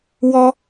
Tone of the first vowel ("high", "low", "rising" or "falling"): high